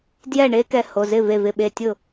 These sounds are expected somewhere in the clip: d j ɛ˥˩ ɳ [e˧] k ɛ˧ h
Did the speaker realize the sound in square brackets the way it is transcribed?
no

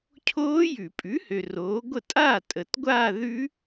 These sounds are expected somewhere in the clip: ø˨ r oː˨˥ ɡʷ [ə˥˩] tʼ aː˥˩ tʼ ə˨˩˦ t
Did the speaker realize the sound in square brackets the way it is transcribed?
yes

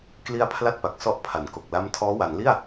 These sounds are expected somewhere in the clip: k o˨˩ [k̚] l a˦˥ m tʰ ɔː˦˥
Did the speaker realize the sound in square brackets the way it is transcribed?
yes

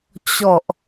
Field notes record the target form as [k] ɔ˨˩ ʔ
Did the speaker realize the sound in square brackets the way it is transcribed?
no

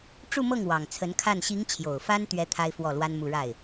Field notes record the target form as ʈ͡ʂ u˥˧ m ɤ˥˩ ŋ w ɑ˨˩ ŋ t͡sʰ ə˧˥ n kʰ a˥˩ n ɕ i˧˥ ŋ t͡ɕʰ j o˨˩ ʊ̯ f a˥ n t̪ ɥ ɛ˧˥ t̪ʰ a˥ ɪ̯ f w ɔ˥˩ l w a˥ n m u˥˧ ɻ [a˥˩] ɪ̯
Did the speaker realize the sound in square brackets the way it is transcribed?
yes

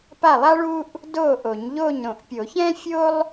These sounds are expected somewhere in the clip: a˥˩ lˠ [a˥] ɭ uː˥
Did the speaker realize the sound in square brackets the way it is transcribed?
yes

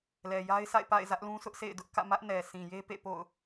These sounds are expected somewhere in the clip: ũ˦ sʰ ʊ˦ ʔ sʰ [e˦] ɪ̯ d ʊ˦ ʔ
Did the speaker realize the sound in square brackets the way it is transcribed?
no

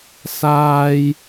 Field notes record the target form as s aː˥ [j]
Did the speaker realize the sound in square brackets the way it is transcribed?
yes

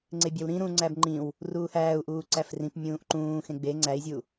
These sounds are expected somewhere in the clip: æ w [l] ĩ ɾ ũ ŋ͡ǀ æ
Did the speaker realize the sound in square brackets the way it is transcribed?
no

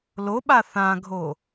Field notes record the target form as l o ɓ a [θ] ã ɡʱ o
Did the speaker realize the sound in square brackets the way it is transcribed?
yes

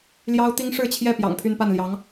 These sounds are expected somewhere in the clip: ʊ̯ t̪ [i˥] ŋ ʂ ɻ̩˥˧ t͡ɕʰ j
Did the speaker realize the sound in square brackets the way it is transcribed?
yes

